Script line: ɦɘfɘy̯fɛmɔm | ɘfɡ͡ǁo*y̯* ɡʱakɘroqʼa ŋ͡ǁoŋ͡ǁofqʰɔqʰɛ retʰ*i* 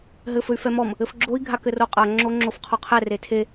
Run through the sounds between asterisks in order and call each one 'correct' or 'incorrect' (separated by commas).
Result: incorrect, incorrect